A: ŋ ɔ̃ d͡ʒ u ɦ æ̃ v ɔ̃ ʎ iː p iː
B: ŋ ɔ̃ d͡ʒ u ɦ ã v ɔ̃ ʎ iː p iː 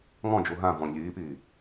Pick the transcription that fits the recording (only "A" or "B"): B